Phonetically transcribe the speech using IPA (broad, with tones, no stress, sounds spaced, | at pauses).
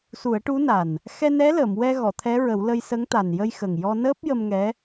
s u˨˩˦ ə̯ ʈ u˧˥ n a˨˩ n | x ɛ˧ n ɛ˧˥ l əː˨˩˨ m w ɛ˧ ɣ ɔ˨˩˨ t̪ʰ ɛ˧˥ ɹ ə˨˩˦ w l ə˧ j s ə˧˥ ŋ t̪ a˨˩ n j ə˧ j x ə˨˩ ŋ j ɔ˧ n əː˦˥ p̚ j ə˧ m ŋ ɛ˧˥